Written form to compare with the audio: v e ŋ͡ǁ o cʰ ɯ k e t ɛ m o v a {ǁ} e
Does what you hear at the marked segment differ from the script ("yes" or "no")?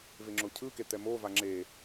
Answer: yes